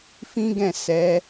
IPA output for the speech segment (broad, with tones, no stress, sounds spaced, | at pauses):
f ĩ˦ ɡ ɛ̃˦˨ s ɛ˨˦